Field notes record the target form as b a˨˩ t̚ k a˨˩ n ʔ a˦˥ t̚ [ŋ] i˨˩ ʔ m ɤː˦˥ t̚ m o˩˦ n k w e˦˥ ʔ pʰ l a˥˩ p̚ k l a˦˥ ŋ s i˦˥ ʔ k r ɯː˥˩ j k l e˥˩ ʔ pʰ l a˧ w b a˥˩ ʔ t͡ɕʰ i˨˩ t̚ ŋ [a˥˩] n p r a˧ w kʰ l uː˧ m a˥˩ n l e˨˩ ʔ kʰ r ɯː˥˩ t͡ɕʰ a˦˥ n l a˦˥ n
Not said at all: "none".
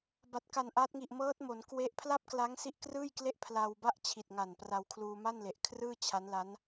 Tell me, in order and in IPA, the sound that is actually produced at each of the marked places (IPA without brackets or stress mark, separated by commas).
ŋ, a˨˩